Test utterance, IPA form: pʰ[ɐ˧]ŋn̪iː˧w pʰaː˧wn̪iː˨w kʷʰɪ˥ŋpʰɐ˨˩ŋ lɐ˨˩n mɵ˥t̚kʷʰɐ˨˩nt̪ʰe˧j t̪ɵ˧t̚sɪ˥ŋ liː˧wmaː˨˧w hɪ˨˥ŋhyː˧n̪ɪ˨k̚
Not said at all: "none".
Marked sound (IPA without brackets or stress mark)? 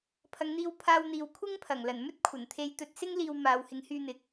ɐ˨˧